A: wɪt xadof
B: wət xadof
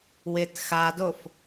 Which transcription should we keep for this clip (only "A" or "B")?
A